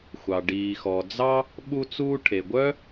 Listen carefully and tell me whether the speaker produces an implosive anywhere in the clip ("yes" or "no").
yes